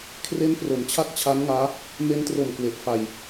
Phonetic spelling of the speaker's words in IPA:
kʰ r e˦˥ n p r o˩˦ m t͡ɕʰ a˥˩ k̚ t͡ɕʰ a˦˥ n ŋ aː˦˥ | m e˦˥ n t r o˨˩ m k w e˨˩ ʔ f a˨˩ j

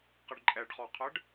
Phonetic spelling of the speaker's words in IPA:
q ə ɖ ǃʼ ɛ ɖ χ ɔ qʰ ə ɖ

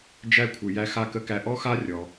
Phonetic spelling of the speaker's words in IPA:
d͡ʒ æ˧ kʷʰ ɨ˩ j æ˧ x a˧ k ə˧ k æ˧ ʔ ɔ˥ x a˥ rʲ ɔ˩

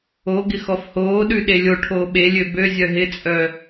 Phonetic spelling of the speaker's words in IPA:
o ɡ ɪ x ɔ f h oː ɗ ʉ ɗ e lʲ o ʈʰ oː ɓ e lʲ ø b ø zʲ œ ɦ ɪ t͡sʼ œ

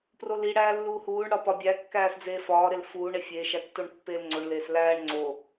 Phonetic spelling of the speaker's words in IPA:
p r o l i ɽ æː lː uː h uː ɳ ɽ ɒ p ɒ bʲ æ kː æː s d͡z eː f ɒː ɾ e l f uː ɳ e fʲ e ʃ æ tː o ɳ pː eː l ŋ͡ǀ o ɳ l eː s l æː ɳ ŋ͡ǀ o

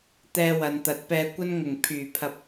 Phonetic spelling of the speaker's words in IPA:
t̪ ɛː˧ w ɐ˨ n t̪ ɐ˨˥ t̚ p ɛː˧ kʷ ɐ˥ n ŋ ʊ˨˩ ŋ pʰ yː˨˩ pʰ ɐ˧ p̚

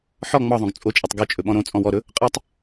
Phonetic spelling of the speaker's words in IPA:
ħ ɔ ŋ͡m ɒ ðˤ õ ɡ t͡sʼ o t͡ʃʼ ɔ tˤ ɡ o t͡ʃʼ ɵ ɓ ɔ̃ ɾ õ t͡sʼ ɔ̃ w ɔ ɾ ɵ | qʼ ə tˤ

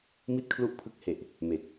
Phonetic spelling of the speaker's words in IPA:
m i˥˩ t̚ kʰ l u˥˩ ʔ pʰ ɯ˦˥ k̚ h e˨˩ ʔ | m e˨˩ k̚

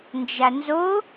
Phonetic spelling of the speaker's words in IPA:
n d͡ʒ a n z o

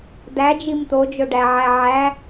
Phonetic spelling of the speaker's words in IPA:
d æ d͡ʒ i m t̪ o d͡ʒ o ɖ æ ʕ æ ʕ æ

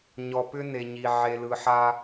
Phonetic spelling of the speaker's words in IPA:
ɲ ɔ˨ p ʏ˦ n e˨ ɲ i˨ ʕ e˨ l ɯ˨ ħ a˦

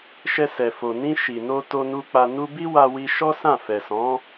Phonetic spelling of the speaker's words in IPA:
ʃ ɛ˧ s ɛ˨ f o˨ n ĩ˧ ʃ i˨ n o˧ t o˧ n u˧ k͡p a˧ n u˧ b i˦ w a˧ w i˦ ʃ ɔ˦ s ã˦˨ f ɛ˨ s ɔ̃˨˦

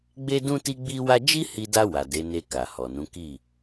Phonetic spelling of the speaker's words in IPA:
ɡ͡b e˦ d ũ˦ t i˦ ɡ͡b i˦ w a˦ d͡ʒ i˦ h i˧ d a˧ w a˨ d e˨˦ n e˧ k a˨ h ɔ˨ n ũ˨˦ k i˦˨

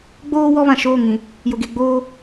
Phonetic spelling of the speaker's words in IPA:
ɡ͡b oː˦ w ɔ˦ β ã˨ ʃ oː˦˨ ŋ ĩ˨ | j ʊ˨ ɡ e˨ ɡ͡b oː˦

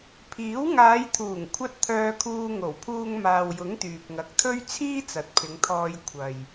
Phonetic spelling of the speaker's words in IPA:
pʰ iː˨˥ w ŋ aː˨˧ j t̪ʰ uː˨˩ ŋ kʷʰ ɐ˧ t̚ t̪ʰ œː˧ kʰ uː˧ ŋ o˨˩ w pʰ uː˧ ŋ m aː˨ w j ʊ˨˥ ŋ t̪ yː˨ p̚ ŋ ɐ˨ k̚ t̪ʰ ɵ˥ ɥ t͡sʰ iː˥ t͡s ɐ˨ t̚ pʰ ɪ˨˧ ŋ t̪ʰ ɔː˧ j kʷʰ ɐ˨ j

